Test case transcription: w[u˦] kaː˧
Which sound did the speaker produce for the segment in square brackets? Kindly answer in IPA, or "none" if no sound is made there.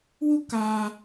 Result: u˦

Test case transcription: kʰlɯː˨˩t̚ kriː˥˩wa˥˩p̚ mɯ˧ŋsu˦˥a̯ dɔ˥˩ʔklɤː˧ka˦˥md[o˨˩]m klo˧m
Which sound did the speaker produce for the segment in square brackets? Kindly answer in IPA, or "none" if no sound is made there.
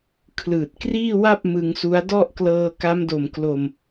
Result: o˨˩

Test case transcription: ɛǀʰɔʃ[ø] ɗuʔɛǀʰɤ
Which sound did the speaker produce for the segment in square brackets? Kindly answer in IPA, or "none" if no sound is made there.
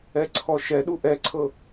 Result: ɛ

